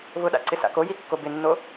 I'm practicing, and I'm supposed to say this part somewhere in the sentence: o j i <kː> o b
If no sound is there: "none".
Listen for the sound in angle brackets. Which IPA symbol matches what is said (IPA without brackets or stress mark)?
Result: kː